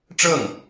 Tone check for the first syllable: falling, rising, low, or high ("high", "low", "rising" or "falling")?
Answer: falling